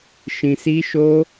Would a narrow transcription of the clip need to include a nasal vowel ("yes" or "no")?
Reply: yes